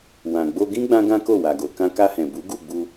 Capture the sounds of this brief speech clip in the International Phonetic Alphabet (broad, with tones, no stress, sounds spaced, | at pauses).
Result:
w ã˨ ɡ͡b o˧ ɡ ĩ˦ ɡ͡b ã˦ ɡ ã˦ k o˦˨ w a˨ ɡ o˨ k ã˧ k a˧ h ɛ̃˨ b u˨˦ ɡ u˦˨ ɡ͡b u˧